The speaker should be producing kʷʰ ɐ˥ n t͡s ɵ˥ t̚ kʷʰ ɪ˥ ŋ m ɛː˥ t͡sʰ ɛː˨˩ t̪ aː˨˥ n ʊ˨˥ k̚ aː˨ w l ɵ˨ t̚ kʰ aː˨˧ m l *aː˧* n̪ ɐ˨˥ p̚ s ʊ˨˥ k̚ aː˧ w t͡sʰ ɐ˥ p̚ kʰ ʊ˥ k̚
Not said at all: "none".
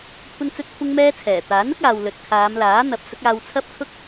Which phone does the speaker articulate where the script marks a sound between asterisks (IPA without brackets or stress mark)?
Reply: aː˨˥